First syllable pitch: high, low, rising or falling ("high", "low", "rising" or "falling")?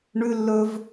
high